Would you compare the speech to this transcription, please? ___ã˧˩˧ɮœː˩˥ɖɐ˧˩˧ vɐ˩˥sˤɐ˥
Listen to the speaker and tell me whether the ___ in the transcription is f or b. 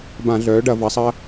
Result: b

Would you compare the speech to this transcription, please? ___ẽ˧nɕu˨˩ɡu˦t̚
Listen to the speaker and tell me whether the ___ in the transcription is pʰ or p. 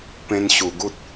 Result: p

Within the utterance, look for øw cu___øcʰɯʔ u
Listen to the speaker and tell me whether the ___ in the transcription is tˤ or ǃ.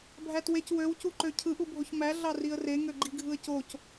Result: ǃ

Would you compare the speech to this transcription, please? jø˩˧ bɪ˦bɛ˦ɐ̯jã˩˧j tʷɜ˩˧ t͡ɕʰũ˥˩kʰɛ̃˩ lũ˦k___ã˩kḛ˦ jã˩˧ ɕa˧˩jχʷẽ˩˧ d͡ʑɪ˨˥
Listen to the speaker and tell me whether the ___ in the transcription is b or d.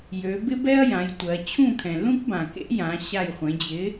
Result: b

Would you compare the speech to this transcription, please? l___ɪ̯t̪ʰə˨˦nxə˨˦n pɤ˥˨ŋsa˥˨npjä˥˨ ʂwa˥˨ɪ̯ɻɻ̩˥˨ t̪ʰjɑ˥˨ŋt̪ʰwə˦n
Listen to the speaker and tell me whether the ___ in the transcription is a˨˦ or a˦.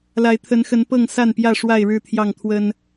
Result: a˨˦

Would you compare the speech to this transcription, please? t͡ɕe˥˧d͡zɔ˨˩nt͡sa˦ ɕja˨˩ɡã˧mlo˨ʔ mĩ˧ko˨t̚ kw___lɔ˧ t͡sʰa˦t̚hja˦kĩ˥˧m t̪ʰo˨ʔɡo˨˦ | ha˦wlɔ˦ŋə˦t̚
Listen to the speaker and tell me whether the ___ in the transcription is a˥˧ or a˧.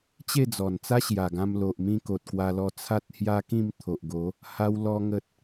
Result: a˧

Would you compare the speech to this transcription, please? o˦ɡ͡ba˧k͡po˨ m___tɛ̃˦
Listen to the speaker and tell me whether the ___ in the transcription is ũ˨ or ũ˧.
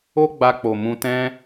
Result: ũ˧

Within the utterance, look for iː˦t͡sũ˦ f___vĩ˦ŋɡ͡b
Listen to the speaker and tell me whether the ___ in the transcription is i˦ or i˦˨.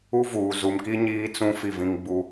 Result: i˦˨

